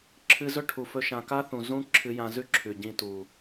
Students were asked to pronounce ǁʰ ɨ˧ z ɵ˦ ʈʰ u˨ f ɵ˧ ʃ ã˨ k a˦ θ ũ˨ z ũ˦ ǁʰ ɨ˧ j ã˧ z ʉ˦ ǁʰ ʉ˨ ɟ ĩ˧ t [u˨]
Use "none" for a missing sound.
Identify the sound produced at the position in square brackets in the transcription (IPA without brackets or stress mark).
u˨